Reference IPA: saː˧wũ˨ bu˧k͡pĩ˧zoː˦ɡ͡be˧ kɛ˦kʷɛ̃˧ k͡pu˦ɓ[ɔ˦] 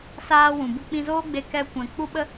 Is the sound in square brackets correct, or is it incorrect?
incorrect